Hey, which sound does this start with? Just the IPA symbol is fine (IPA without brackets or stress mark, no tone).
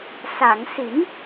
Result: s